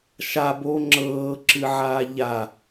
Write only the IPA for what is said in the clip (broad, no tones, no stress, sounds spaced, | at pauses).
ʃ a b oː ŋ͡ǁ ɤː ǁ ɨ ʕ aː ʎ a